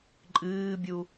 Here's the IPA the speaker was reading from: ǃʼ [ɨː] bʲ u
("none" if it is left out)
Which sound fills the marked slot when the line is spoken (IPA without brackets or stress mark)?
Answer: ɨː